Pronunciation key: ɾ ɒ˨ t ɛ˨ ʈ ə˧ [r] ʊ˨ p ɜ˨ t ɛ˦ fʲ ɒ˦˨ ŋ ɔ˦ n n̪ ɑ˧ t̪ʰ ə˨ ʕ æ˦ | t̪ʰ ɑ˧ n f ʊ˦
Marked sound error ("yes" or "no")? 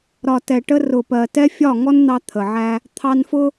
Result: no